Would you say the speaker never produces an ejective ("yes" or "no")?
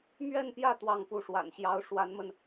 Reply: yes